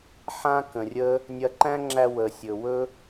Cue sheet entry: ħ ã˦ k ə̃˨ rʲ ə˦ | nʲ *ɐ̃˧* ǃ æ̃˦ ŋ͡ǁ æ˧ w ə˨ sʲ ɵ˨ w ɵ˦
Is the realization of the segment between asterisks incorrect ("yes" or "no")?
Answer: yes